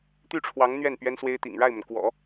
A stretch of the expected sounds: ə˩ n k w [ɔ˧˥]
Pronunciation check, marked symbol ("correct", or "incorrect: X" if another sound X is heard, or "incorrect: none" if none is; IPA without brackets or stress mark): incorrect: ɔ̰˨˩˦